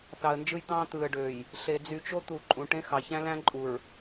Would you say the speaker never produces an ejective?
no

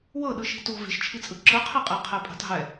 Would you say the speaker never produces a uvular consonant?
no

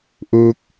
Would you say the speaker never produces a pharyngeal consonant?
yes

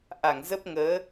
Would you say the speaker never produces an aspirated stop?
yes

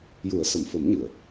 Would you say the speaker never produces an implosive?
yes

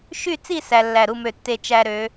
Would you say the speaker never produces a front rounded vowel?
no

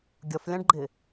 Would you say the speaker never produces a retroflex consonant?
no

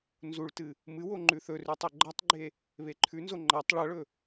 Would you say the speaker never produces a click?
no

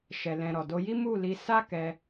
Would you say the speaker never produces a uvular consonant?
yes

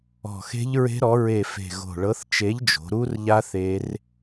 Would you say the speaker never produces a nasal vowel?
yes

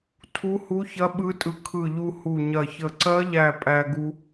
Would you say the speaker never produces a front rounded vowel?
yes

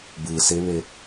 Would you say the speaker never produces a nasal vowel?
yes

